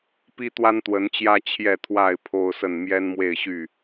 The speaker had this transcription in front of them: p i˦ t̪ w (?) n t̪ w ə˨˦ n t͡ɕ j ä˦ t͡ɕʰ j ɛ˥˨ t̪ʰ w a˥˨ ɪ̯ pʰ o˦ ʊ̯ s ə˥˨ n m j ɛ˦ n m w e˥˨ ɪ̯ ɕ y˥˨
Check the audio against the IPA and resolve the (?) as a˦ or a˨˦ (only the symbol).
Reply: a˦